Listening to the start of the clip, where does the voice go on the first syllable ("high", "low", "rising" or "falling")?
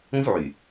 high